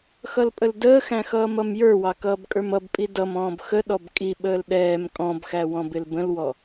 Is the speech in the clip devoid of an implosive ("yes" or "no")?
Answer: no